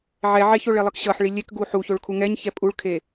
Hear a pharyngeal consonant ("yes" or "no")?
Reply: yes